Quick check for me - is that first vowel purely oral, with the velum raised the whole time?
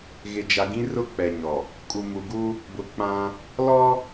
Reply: yes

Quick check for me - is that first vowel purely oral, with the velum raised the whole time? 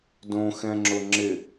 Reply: no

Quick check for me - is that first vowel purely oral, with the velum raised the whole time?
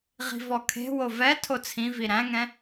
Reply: yes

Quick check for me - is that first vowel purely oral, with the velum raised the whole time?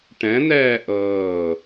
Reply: no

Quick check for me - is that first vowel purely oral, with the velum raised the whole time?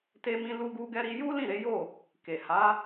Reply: yes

